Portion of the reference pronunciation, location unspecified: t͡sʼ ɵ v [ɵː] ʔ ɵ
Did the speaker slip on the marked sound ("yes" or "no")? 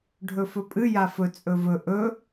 yes